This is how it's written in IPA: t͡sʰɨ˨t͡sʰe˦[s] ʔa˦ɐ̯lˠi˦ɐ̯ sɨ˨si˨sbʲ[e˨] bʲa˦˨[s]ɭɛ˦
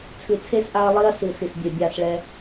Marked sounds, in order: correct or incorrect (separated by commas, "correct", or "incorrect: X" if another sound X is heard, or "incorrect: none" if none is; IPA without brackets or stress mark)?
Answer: correct, correct, correct